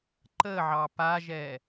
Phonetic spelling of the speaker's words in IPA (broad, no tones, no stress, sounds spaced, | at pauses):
ǃ ə ʕ ɑ p a ʒ ɛ